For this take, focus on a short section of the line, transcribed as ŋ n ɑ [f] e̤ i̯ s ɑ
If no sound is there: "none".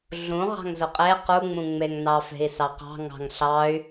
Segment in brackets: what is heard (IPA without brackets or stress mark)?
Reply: f